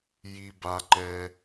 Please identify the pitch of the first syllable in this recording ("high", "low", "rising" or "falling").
low